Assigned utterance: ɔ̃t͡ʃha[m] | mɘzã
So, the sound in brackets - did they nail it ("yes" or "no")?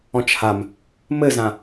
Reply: yes